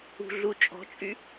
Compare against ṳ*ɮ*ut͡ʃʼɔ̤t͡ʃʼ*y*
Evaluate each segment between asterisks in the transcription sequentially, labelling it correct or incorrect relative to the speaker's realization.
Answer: correct, correct

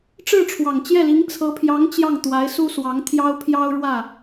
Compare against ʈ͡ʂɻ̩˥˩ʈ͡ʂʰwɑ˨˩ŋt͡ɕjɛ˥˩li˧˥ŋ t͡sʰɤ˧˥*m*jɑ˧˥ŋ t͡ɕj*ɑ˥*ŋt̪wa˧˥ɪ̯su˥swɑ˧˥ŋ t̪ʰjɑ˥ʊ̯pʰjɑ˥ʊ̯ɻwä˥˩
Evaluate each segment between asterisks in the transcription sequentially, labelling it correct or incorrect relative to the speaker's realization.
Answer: incorrect, incorrect

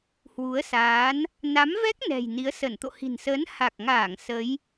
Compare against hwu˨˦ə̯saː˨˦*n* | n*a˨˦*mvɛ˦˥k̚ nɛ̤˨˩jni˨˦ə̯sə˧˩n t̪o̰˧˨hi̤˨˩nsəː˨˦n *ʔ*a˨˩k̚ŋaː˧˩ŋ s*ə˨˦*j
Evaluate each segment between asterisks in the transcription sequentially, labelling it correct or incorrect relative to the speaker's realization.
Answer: correct, correct, incorrect, correct

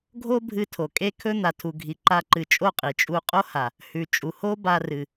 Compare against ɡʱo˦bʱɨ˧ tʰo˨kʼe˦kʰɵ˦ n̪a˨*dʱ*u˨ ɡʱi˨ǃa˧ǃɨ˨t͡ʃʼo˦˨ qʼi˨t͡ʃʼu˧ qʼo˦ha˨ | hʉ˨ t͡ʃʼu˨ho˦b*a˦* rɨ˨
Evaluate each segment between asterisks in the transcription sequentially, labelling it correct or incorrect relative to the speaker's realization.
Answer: incorrect, incorrect

